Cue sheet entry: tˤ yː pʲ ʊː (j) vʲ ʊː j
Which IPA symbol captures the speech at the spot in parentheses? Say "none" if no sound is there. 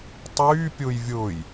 j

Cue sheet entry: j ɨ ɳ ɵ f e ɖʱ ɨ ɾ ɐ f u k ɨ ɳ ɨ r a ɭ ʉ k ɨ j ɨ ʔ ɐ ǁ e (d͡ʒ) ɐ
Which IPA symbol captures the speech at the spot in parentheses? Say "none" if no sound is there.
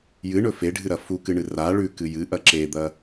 d̪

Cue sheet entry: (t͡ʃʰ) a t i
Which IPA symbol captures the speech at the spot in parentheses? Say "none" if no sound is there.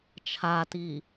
t͡ʃʰ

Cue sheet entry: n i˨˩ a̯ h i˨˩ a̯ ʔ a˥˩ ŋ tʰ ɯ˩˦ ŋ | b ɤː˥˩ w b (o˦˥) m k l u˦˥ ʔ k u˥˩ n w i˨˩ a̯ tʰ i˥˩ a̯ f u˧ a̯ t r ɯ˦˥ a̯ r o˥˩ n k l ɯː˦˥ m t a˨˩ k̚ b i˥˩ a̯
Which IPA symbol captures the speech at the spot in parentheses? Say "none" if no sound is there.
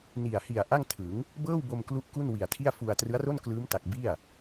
o˧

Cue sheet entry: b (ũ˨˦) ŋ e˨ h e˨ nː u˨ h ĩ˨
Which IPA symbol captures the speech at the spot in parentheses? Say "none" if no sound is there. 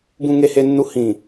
ũ˨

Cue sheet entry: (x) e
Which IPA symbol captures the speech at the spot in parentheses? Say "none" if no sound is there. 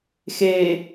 x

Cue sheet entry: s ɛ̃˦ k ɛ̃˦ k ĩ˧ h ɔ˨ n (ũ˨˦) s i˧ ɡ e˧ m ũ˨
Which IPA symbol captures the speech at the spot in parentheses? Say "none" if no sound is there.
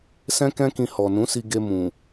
ũ˨˦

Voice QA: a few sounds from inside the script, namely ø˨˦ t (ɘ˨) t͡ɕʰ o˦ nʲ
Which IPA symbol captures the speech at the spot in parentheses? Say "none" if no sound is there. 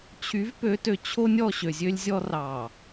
ø˨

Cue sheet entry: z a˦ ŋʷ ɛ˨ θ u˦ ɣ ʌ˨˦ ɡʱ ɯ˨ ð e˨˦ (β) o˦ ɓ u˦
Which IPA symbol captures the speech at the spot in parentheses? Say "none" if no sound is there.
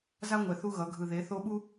θ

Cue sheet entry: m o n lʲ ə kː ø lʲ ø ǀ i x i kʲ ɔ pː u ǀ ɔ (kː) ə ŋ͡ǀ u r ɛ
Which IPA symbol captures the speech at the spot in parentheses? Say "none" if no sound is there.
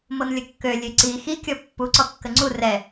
kː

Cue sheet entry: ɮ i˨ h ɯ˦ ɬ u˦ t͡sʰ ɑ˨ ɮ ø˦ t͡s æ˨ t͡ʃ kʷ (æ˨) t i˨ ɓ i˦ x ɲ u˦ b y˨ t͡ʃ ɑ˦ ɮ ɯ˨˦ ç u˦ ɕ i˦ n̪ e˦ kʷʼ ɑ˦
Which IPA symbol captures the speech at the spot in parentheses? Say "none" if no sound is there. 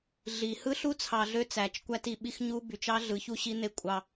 æ˦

